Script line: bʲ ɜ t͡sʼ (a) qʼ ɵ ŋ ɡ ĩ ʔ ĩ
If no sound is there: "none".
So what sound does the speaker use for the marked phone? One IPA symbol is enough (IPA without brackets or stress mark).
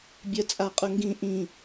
a